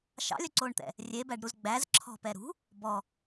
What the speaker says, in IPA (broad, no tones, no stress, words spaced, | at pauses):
ʃɑ̰lʲœǀoːɳt̪ɛ̰ | rʲebæɖɾuz ɡ͡bæz ǁʰɔ̤pɛɾṳ | bɔ